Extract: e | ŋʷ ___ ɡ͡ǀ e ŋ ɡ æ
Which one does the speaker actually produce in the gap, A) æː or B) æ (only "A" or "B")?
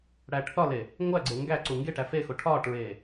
B